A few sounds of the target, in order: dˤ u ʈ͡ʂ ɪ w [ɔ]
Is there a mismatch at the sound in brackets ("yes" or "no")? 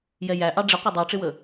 yes